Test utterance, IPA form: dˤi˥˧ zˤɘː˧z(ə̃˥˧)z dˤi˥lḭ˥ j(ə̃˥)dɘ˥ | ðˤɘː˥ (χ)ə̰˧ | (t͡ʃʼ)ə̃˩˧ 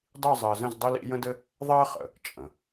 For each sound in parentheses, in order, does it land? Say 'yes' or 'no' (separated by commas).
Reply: yes, yes, yes, yes